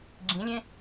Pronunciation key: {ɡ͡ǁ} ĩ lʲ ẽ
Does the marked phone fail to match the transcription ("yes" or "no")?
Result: no